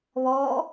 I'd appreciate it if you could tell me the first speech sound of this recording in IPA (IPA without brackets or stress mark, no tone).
β